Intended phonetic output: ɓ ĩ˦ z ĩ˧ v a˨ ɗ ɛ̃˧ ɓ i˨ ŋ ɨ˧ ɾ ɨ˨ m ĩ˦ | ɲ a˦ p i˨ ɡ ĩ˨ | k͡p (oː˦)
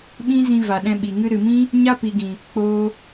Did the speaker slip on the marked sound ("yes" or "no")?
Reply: yes